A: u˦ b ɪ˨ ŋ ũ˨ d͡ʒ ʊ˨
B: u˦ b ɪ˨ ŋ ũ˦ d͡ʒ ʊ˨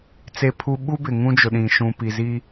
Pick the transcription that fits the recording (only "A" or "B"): B